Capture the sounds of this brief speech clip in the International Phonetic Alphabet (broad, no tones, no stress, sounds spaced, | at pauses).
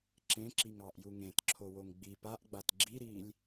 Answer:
ǁ ẽ ǁ i ŋ ɑ ʔ j u ŋ ẽ t ǁʰ o w o ŋ ɡ͡b i p a ʔ ɡ͡b a t ɡ͡ǁ i ɾ iː lʲ